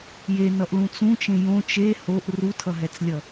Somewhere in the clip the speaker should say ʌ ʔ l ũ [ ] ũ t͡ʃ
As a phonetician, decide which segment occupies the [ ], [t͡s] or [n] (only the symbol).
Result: t͡s